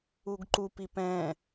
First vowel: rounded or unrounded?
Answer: rounded